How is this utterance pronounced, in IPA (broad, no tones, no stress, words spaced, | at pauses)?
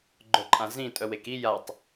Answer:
ɡ͡ǃœǃʼãzĩ tʼœweki jatˤ